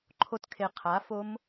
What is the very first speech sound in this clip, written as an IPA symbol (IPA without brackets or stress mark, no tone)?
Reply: ǃʰ